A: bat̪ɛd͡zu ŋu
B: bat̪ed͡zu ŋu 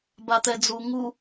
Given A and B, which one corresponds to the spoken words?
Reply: A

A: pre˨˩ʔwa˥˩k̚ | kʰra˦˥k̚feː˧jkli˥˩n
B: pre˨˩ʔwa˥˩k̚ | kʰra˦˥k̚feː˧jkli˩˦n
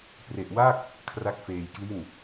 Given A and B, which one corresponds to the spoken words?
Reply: A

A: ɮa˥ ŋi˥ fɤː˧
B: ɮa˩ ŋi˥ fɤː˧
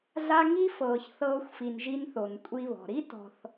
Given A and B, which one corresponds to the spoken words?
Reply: A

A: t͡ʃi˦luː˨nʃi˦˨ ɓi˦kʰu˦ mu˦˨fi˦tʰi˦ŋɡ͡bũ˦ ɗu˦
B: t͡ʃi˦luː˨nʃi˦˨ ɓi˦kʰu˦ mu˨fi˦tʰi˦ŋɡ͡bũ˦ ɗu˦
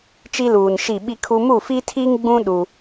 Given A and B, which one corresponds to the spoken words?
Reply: A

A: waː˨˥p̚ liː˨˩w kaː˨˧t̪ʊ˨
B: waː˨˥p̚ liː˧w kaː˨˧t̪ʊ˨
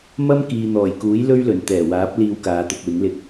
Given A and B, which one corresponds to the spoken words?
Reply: B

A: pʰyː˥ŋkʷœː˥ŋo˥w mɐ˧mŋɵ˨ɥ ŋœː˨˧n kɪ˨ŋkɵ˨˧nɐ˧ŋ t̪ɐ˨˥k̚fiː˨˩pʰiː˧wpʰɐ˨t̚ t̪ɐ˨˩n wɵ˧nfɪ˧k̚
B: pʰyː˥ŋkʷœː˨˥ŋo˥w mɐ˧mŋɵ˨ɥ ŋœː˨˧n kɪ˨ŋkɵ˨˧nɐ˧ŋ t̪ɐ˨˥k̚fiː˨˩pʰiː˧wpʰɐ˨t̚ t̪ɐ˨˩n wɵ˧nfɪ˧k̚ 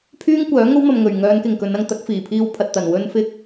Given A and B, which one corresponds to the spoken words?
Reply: B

